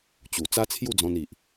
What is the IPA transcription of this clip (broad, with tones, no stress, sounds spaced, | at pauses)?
t͡ɕ u˨˩ t͡s a˦ t͡sʰ j u˥˧ d͡z ɔ̃˧ n i˨ ʔ